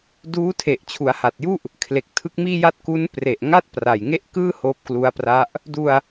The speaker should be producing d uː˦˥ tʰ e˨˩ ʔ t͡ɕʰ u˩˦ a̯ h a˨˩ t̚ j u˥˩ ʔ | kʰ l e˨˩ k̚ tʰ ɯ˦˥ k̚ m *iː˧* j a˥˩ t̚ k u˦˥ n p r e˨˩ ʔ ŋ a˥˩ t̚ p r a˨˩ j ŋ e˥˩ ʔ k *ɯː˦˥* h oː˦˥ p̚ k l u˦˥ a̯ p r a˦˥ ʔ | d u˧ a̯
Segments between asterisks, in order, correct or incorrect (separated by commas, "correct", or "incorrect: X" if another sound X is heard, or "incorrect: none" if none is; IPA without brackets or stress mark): incorrect: iː˥˩, incorrect: ɯː˥˩